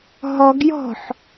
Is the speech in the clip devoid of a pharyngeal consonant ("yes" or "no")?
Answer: no